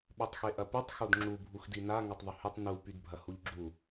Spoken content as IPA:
ɓ ø tˤ x e ʔ ɐ p y tˤ x o d ŋ͡ǁ u bʱ u x d i n a ŋ ɐ tˤ ðˤ ʏ h ʏ tˤ n u p y d bʱ ɐ h u ʎ ɡ͡ǁ u

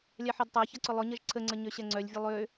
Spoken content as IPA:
lʲ a ħ e d tˤ a ç ɐ ǀ ʊ lˠ ʊ ɲ ɐ ʒ ǀʰ ə ŋ͡ǀ ə ɲ ø ɕ ɛ ŋ͡ǀ œ lʲ vʲ ʊ lˠ ø

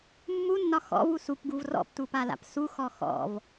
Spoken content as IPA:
mː u nː ɒ x ɔ̰ v u s u p ɡ u v r ɔ̰ p t u p a l a̰ p s u x ɔ x ɔ̰ v

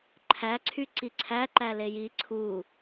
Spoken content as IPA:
ǃʰ æ ǀʰ y ǀ i ǀʰ æ ǃ æ l e j i ǀʰ u

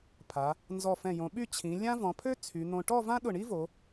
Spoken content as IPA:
pʰ a˩˧ | n z ɔ˧˩ f ɛ̃˧˩ j õ˩˧ ɓ y˥˧ t͡ɕʰ ĩ˩˧ lʲ ã˥ v ɔ̃˩˧ pʰ ø˥ t͡sʰ y˩˧ n̪ õ˧ ʈ ɔ˥˧ v ã˥ ɗ ʊ˧˩ ɳ i˥ v o˩˧

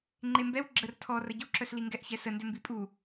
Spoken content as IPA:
ŋ͡ǃ e m b ɛ w ɡ͡ǁ ə r tʰ ɔ r ə ɟ u ǁ œ s l i ŋ ɡ ɛ ʔ ç ɛ s ə n d ʏ m b i pʼ u

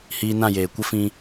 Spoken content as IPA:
h iː˧ n ã˦˨ j eː˨ kʷ ə˦ f ĩ˧

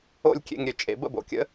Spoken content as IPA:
o̰˥˩ lʲ kʲ ḛ˧ ŋ ɾʲ ø˩ t͡ʃʼ ḛ˩˥ b ə̰˥˩ b o̰˩ kʲ ə̰˥

